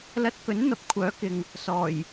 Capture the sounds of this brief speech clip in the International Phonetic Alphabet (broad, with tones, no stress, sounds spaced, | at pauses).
l ɐ˧ t̚ k ɵ˨˥ n n̪ ɐ˨ p̚ kʷʰ œː˨˥ k ɪ˨ ŋ | s ɔː˨˩ j